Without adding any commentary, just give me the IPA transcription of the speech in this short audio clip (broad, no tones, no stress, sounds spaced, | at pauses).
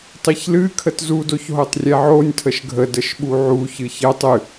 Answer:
tˤ i ç l ɨ kʰ ə t z u d o ç ɦ o tˤ rʲ ɛ ʕ o nʲ tʰ ə ʃ ɡʱ ə d ə ʃ ɓ u ʕ u ç ɨ ç ɛ tˤ ɨ